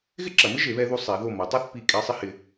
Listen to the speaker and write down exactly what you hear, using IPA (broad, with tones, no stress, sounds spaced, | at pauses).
ɣ ɪ˥ ǁ ɐ˩˧ m ɪ˥ ʒ e˩˧ β ɛ˧ ð u˧ sˤ e˩˧ ð o˧˩ m ɐ˩˧ tˤ a˥˧ θ p i˧˩ kʼ ɛ˧ sˤ ɪ˥ h ɪ˧